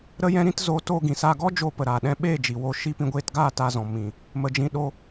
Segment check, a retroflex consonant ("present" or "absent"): absent